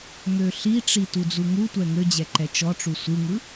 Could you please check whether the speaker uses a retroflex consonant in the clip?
yes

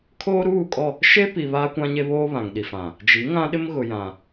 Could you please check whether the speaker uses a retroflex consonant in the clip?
no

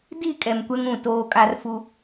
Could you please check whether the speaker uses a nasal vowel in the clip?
yes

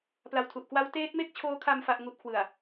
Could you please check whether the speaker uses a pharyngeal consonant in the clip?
no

